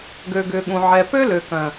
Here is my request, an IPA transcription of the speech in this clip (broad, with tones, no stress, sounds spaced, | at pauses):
ɡ ø˨ ɡ ʏ˨ ɠ ũ˨ ʕ ɛ˨ p ø˦ l ø˨ k œ̃˨